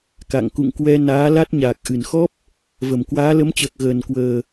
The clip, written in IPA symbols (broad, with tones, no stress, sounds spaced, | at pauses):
k a̰˧˨ ŋ k ṵ˧˨ ŋ k w ɛ˧ n aː˨˦ l a˦˥ t̚ ɲ aː˨˩ k̚ ʔ ɨ˧˩ n x ɔ˦˥ p̚ | v ə˧˩ m k w aː˨˦ l ə˨˦ m t͡ɕ əː˨˩ k̚ ɣ əː˨˩ n k w əː˨˩